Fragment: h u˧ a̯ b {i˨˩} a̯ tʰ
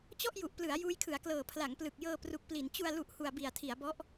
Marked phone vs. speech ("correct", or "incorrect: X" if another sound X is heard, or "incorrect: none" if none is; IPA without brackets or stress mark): correct